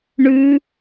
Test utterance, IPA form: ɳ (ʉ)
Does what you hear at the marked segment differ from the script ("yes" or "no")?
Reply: no